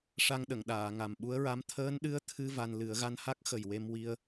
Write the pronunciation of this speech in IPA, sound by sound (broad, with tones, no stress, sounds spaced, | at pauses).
ʂ a˧ ŋ ɗ ə˨˩˨ ŋ ɗ aː˨˩˨ ŋ a˨˩ m ɓ u˧˥ ə̯ ɹ a˧˥ m t̪ʰ əː˧˥ n ɗ ɨ˧˥ ə̯ t̪ʰ ɨ˧ v a˧ n l ɨ˨˩˦ ə̯ ɣ a˧ n h a˦˥ k̚ x ə˨˩ j w e˧ m w i˧ ə̯